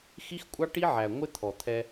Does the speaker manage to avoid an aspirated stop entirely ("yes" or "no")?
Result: no